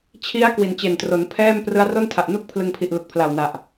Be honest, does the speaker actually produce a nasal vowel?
no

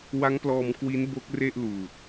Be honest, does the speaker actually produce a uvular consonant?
no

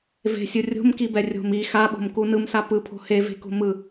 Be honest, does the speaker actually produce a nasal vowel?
no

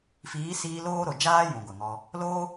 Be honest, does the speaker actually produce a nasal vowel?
yes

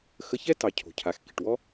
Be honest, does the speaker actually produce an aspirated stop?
yes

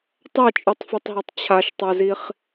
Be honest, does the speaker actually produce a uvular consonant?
yes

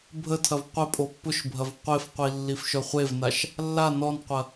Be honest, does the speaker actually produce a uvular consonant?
yes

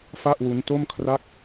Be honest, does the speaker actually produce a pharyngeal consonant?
no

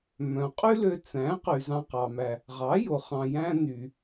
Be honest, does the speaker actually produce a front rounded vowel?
yes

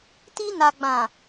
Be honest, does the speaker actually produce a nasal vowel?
yes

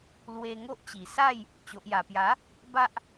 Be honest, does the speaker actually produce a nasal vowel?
no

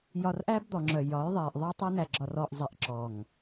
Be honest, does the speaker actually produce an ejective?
no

